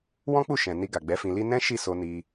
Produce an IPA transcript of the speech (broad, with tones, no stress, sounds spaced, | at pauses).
w ɔ̃˦ k͡p u˦˨ ʃ ɛ̃˨ n i˧ ɡ a˨ ɡ͡b ɛ˨˦ f ĩ˧ l i˦ n ɛ̃˦ ʃ i˦˨ s o˧ n i˧